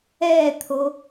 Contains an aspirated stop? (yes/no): yes